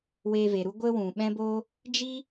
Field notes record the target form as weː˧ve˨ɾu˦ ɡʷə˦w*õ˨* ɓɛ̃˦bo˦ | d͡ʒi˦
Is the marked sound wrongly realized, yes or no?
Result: yes